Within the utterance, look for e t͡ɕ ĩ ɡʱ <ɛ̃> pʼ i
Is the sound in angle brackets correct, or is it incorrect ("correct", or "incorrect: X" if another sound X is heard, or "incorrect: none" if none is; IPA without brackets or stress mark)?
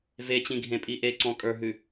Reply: incorrect: ẽ